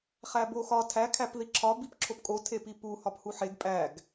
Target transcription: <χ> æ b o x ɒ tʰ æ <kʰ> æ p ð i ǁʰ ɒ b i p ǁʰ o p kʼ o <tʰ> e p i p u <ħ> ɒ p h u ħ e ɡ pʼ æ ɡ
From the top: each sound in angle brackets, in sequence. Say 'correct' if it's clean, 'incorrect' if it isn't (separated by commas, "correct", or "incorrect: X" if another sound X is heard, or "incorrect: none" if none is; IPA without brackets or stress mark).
correct, correct, correct, incorrect: h